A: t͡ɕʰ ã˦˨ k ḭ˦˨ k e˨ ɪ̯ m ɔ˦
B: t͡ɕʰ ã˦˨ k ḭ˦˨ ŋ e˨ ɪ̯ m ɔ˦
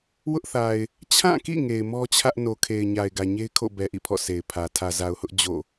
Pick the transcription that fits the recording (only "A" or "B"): B